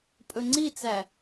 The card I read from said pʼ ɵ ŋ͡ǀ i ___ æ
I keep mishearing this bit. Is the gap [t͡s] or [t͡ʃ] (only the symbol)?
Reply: t͡s